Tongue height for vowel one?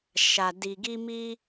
low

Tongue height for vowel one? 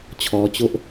mid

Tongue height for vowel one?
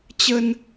mid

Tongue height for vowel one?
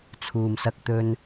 high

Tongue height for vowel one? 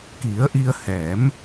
high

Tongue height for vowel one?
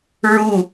high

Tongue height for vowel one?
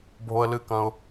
mid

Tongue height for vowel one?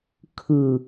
high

